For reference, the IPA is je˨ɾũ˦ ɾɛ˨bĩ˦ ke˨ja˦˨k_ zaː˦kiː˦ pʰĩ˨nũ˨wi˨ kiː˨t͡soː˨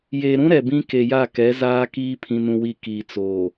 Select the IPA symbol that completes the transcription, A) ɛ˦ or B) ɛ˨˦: B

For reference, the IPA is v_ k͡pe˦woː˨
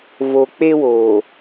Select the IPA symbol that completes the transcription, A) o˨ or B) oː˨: A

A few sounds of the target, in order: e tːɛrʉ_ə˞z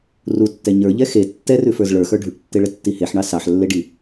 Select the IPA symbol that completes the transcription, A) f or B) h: A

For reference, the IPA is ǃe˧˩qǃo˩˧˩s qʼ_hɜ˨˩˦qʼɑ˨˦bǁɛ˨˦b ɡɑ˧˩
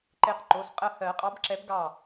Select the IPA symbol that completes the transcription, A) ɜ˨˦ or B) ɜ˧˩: B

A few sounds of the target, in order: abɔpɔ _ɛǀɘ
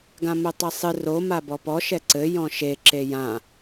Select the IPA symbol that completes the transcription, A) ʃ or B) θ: A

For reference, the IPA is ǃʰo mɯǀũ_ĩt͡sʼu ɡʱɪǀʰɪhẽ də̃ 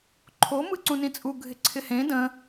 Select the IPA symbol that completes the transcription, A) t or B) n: B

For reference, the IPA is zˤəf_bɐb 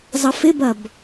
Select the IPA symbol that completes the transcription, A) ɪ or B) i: A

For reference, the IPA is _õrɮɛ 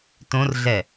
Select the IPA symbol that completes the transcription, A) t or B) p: A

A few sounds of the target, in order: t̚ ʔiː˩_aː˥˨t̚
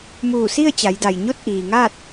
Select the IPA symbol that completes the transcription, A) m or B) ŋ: B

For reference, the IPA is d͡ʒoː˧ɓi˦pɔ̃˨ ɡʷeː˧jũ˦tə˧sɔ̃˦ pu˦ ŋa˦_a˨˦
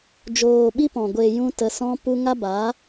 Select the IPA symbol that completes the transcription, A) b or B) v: A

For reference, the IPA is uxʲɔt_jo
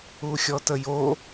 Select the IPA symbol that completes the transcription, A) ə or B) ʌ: A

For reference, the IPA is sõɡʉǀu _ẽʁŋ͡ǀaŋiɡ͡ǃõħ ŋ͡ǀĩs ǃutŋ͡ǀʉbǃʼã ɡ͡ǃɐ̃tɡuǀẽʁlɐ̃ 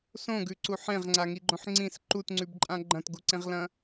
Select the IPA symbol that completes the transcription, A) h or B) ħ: B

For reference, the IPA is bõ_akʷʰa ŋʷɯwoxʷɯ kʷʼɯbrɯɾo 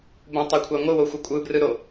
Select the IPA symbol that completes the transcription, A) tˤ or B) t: A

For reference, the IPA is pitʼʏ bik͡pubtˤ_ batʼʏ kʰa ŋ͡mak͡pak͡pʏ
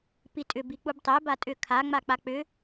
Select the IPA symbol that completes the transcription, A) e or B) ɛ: B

